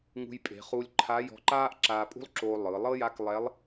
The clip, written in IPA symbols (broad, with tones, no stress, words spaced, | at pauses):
ŋṳ˧jpʼe̤˩˧ χu˧lʲǃʰa˧˥jɔ̤˧ ǃaː˥ʔǁaː˧pʼṳ˥lˠǁoː˧ lˠɯ˩˧ lˠɤ˥ja˧˥k lˠɛ˧˥lˠ